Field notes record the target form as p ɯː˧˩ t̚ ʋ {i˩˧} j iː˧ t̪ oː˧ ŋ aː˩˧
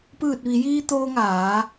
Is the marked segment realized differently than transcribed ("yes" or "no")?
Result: no